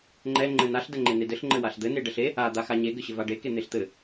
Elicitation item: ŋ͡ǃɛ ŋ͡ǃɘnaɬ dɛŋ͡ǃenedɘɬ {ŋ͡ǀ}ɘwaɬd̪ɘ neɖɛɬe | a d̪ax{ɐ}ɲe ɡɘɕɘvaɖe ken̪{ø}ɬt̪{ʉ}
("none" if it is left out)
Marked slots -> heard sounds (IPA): ŋ͡ǃ, a, e, ɘ

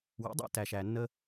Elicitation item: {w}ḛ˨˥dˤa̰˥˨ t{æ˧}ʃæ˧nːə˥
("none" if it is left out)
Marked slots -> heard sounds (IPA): w, æ˧

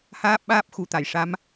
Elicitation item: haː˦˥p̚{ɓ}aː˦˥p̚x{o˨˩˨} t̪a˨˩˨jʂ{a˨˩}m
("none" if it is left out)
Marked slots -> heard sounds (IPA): ɓ, u˨˩˨, a˧˥

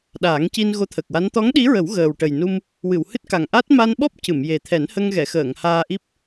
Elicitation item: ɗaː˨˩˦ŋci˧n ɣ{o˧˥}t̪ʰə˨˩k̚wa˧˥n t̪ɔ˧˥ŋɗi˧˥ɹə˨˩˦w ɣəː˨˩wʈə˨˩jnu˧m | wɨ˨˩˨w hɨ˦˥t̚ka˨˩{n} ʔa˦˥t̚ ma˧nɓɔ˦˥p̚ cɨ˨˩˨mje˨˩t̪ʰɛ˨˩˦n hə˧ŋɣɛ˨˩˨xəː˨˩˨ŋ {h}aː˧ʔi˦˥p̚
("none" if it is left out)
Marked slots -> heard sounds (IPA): o˧˥, ŋ, h

